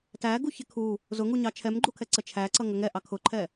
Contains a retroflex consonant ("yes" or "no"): no